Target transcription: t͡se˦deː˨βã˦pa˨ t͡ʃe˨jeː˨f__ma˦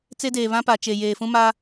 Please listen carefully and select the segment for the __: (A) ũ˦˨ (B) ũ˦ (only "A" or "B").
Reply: B